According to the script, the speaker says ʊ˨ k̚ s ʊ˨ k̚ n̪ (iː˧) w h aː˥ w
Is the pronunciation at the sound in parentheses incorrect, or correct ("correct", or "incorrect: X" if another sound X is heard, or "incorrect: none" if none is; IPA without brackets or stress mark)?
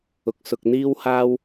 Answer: incorrect: iː˥